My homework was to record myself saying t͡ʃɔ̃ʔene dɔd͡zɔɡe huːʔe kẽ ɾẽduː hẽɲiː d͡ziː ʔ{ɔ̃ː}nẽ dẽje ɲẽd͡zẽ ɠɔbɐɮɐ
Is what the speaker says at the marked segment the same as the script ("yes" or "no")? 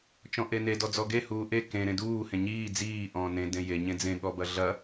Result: yes